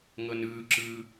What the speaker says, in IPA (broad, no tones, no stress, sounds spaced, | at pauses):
ŋ ɤ n ɯː ǁ ɯː